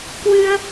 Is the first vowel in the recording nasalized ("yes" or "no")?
no